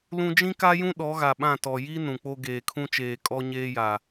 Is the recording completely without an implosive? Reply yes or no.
no